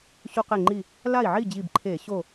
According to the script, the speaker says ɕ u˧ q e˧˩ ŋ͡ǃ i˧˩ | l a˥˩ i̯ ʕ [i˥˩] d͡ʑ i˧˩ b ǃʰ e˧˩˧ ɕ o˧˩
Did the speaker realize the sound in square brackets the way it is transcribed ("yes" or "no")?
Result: yes